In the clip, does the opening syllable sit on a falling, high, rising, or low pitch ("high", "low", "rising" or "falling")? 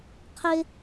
high